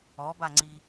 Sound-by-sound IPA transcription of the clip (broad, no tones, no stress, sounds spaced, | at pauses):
ɔ b a ŋ͡ǀ i